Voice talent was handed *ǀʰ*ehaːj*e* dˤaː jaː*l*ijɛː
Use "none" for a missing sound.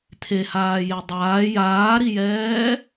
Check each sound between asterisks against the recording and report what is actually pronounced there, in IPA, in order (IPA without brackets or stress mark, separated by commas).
tʰ, e, ɾ